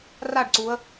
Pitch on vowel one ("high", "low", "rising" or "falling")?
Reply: falling